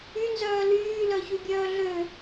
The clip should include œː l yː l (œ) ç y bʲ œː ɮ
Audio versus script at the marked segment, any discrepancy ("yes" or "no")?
no